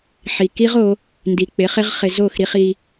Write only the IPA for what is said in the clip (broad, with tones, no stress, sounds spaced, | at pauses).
ħ i˨ k i˦ ʁ o˨˦ | n d i˨ k͡p ɪ˨˦ χ ɪ˦ ʁ χ ɪ˧ z o˦˨ x ɾ i˧ χ i˧